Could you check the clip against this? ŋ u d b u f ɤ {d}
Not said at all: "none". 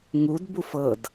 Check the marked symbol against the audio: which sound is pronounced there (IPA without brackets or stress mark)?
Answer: d